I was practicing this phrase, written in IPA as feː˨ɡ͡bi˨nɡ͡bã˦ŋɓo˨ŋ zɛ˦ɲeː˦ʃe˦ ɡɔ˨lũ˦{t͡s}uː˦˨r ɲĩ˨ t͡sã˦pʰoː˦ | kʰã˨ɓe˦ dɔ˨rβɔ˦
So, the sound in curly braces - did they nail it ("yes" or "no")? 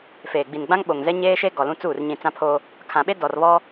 yes